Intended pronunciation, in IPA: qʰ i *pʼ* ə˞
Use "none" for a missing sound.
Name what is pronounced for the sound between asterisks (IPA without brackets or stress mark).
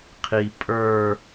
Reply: pʼ